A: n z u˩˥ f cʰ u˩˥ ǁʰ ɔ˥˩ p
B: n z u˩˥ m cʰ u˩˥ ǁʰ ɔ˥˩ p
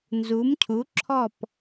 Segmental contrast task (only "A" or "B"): B